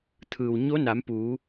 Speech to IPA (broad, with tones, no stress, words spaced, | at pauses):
t̪ʰɯː˩w ɲo˧˥na˩˧m puː˩˧